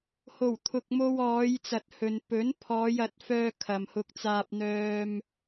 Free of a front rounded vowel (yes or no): no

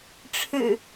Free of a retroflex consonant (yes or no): no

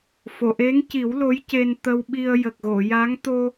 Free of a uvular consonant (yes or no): yes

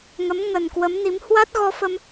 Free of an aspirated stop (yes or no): yes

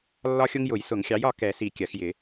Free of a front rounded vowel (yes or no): yes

